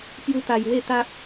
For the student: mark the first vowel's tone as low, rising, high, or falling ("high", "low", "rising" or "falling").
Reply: high